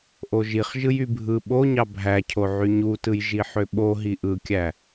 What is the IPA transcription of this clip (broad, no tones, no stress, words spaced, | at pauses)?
ʔoʒiχ ʒɯjybʱɯ ɓoɲɑ bʱæcʰo ʕyɲutɯj ʒiħøɓo ɦiʔɯkʲæ